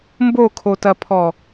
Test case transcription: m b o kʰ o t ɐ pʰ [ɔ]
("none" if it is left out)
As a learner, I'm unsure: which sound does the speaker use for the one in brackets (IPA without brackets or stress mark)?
ɔ